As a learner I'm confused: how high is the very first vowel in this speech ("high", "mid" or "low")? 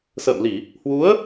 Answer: mid